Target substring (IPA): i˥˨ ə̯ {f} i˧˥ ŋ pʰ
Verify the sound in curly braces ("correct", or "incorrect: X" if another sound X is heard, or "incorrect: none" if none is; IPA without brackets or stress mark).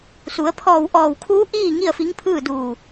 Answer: correct